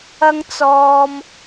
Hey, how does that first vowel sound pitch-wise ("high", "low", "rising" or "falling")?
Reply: high